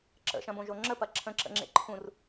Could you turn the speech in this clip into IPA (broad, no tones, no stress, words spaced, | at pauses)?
ǁə̰ʃɐ̃bõʒo ŋ͡ǁəpɐ ǁʰə̃ǁə̰ŋ͡ǁḛ ǃʰũr